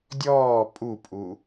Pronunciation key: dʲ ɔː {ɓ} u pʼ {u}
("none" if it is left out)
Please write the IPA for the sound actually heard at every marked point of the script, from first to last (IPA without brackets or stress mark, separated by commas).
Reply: pʼ, u